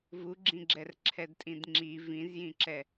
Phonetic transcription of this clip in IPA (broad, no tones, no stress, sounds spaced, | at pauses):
v u ɡ͡ǁ ĩ ɡ͡ǁ ɛ r ǁʰ ɛ d tʼ ĩ d ŋ͡ǁ i v ĩ z j ĩ ǁ ɛ